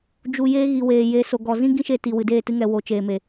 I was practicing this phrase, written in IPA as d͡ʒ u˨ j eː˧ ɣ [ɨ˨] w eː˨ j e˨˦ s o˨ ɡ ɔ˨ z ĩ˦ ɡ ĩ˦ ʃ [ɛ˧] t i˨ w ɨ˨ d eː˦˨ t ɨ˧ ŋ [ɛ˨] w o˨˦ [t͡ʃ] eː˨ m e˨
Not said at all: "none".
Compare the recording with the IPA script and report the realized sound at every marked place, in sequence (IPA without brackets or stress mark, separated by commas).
i˨, e˧, ɛ˨, t͡ʃ